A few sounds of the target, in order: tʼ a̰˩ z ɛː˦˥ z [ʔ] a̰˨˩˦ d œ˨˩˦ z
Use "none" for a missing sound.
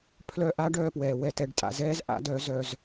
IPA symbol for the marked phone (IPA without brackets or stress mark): ʔ